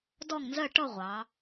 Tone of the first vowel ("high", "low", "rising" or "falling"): falling